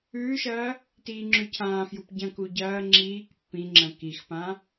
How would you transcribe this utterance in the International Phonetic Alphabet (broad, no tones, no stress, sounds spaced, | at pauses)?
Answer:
ʉː ʃ ɐː | t iː ŋ͡ǁ ʉ cʰ ãː f j u p ɟ ɐ̃ k u ɟ ɐː ŋ͡ǁ iː k pː ĩ ŋ͡ǁ ɐ̃ k i x p ã